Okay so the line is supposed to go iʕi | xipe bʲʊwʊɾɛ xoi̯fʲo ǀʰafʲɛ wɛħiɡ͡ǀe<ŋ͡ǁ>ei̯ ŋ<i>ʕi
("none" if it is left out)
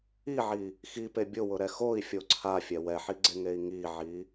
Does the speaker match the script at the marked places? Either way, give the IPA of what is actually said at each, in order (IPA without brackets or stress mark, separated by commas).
ŋ, i